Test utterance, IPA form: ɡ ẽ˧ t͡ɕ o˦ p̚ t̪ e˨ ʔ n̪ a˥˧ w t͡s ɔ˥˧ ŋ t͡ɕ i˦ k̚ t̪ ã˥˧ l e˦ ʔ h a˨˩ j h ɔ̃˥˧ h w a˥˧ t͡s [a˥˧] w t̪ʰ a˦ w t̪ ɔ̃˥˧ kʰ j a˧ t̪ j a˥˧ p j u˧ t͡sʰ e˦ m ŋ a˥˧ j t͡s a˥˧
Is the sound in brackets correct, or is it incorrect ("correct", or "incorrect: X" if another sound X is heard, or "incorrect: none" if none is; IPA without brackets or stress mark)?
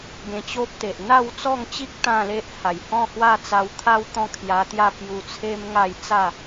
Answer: incorrect: a˧